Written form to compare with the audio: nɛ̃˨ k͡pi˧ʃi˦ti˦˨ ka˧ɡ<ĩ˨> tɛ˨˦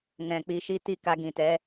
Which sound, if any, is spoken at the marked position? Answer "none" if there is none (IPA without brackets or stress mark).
ĩ˨